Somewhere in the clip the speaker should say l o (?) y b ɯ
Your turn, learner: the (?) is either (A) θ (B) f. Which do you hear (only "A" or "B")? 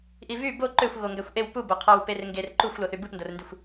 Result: A